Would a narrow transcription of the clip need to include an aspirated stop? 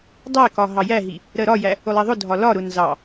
no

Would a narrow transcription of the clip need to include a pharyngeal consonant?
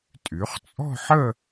yes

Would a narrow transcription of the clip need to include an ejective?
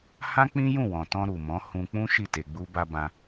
no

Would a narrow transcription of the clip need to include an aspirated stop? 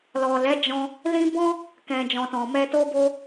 no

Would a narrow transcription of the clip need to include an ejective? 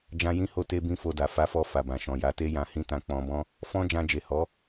no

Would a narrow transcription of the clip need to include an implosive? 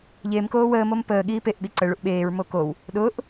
yes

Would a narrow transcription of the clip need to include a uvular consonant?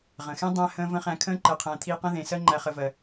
yes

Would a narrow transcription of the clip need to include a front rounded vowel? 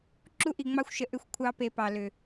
yes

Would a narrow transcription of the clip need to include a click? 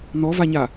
no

